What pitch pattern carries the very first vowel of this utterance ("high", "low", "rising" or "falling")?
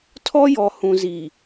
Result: high